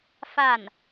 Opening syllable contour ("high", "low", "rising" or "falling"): falling